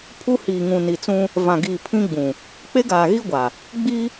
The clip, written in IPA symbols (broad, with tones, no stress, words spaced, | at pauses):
pʰu˦hiː˨ŋũ˨ ni˨t͡sũ˦ | vã˨ɡiː˨pʰĩ˦ ɡ͡bũ˨ | k͡pe˦ɡaː˨ɣi˦ɡʷa˨ | ɡ͡biː˦